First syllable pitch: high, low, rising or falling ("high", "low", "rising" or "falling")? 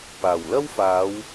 low